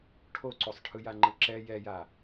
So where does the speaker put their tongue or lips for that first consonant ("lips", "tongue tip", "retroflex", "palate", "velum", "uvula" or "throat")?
retroflex